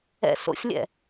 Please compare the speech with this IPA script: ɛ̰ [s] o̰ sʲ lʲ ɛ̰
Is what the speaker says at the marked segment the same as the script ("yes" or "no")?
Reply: yes